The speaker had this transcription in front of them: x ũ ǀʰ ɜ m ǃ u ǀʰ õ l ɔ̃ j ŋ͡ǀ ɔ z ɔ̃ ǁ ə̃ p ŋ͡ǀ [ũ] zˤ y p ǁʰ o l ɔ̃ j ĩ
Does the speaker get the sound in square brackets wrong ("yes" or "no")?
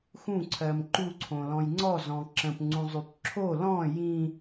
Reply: no